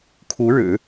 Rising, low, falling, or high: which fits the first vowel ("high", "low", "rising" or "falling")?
rising